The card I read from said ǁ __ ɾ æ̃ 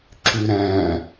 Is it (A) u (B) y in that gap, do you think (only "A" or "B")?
B